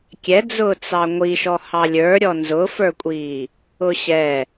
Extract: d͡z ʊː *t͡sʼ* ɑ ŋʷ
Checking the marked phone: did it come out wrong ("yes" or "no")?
yes